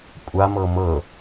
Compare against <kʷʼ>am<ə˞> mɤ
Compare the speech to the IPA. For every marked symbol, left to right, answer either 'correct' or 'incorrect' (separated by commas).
correct, incorrect